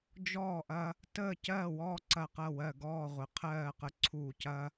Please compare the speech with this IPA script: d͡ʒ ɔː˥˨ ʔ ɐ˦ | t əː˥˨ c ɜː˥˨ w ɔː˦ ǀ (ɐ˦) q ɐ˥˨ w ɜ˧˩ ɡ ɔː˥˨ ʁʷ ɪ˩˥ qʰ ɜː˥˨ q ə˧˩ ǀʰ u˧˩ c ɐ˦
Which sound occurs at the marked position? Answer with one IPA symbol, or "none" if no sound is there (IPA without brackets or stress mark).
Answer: ɐ˧˩